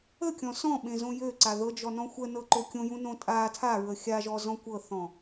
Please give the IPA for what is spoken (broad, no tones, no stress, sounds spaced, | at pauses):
ə kʲ ɔ̃ s ɔ̃ ɓ ẽ z õ j ø ǀ a ð ɤ d͡ʒ ɔ n ɔ̃ xʷ ə n ɤ ǃ o kʲ õ j ũ n õ tʼ a tʰ a ɹ ə xʲ a ʒ ɔ z ɔ̃ kʷ ɤ θ ɔ̃